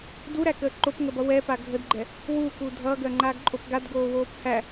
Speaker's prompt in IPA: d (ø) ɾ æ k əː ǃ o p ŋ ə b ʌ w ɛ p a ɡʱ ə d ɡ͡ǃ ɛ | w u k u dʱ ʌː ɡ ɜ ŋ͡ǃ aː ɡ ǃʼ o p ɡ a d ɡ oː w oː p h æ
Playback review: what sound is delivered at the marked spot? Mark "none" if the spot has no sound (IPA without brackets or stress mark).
u